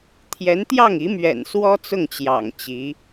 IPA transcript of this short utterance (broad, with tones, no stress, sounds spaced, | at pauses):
t̪ʰ j ɛ˧˥ n t̪ j ɑ˥˩ ŋ i˧˥ m ɥ ɛ̰˨˩ n s w ɔ˥ t͡s ʊ˥˩ ŋ t͡ɕ j ɑ̰˨˩ ŋ t͡ɕ i˧˥